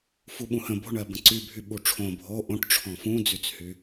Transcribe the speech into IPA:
f u ɓ ũ h ə̃ b o̤ ɳ ɜ b ə̃ ǀ y bʱ y ɓ u ʈ͡ʂʰ õ bʱ o ʔ õ ʈ ʈ͡ʂʰ ɔ̃ f ũ d͡z y t͡s h y

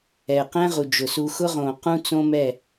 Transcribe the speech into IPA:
ɛ˨ q ɛ̃˦ ʁ u˨ d͡ʒ ʊ˨ s u˨ x ʊ˦ ʁ õ˨ q ũ˦ t͡s õ˦ m ɛ˦˨

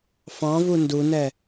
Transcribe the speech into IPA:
f ɑ̃ v u n d u n ɛ

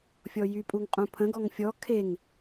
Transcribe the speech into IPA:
fʲ ɔ j y pʼ u ŋ qʼ ũ pʰ ə̃ ɡ ɔ ŋ fʲ ɔ kʰ e ŋ

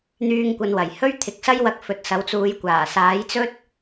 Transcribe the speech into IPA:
n̪ yː˧ ŋ kʷ ɐ˨˧ n w ɐ˨˩ j h ɵ˥ ɥ t̪ʰ ɪ˨˥ k̚ s ɐ˥ j w ɐ˧ k̚ f ɵ˨˥ t̚ s ɐ˨˥ w t͡s uː˨˧ j kʷ aː˨˩ s aː˨˥ j t͡s ɵ˥ t̚

